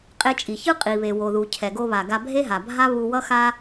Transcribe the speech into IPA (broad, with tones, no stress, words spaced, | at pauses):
qʼe˧t͡ʃʼi˩çɯ˥ qʼi˩βe˩wo˩ðu˩ cʰɛ˩ɡo˧βa˩ ɡa˧bʱe˥ɦa˩bʱa˥ βu˧wʌ˥xa˥